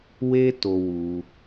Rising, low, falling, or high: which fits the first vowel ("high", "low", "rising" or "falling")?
high